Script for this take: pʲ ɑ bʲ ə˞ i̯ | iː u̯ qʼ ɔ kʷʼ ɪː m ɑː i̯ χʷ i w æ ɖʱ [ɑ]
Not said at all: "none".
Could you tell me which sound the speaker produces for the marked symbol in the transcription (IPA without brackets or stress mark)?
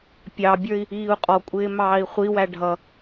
ʌ